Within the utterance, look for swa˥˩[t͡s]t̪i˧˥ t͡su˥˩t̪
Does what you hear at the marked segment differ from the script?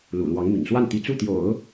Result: yes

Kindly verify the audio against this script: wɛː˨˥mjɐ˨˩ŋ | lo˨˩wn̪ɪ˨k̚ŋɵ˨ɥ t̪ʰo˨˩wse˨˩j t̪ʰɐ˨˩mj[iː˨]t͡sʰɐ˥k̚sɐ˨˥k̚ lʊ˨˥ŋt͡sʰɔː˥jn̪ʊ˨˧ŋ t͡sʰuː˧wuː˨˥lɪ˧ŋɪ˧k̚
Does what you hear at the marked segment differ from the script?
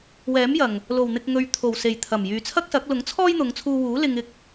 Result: yes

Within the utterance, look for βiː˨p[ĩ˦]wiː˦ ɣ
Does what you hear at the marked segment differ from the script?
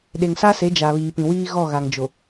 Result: yes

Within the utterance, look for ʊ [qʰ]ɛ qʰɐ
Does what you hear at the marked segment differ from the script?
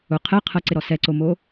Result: no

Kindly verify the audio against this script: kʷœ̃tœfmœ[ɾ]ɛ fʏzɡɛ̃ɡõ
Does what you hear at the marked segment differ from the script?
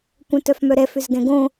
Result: no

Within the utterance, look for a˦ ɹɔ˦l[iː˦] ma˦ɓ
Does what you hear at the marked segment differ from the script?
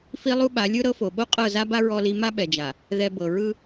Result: yes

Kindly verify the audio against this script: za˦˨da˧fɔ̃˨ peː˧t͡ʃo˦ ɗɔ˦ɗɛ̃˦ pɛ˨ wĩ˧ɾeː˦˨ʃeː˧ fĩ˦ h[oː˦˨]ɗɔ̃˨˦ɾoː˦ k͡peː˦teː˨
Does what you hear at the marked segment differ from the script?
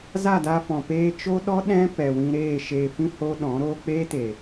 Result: yes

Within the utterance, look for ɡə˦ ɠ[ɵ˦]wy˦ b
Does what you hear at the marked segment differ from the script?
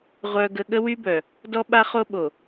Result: yes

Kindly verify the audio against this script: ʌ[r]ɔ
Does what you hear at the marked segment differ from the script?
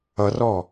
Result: no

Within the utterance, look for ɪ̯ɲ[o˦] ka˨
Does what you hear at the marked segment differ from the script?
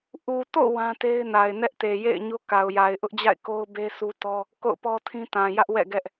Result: no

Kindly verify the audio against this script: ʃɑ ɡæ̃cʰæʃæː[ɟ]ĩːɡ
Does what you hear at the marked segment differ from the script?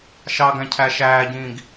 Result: no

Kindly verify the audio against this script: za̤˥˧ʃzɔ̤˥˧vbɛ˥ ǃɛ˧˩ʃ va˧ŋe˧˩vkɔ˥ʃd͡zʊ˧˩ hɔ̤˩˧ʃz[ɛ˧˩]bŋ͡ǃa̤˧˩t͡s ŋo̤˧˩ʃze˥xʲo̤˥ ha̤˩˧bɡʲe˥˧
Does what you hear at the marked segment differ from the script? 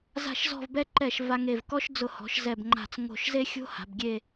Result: no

